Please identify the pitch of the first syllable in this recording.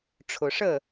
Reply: low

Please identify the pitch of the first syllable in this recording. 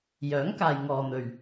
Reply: rising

